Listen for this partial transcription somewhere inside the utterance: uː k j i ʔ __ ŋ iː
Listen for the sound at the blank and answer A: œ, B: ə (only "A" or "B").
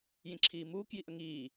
B